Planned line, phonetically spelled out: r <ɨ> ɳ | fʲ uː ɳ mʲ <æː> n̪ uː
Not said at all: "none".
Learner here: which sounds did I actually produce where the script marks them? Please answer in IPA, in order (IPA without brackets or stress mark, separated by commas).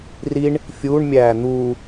i, æː